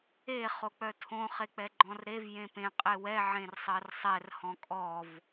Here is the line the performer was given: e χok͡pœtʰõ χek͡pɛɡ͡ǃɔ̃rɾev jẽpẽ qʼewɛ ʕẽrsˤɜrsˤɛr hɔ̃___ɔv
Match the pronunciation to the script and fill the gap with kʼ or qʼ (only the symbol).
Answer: kʼ